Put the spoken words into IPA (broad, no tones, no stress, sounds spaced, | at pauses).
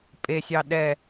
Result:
pʼ e sʲ ɑ ɗ ɛ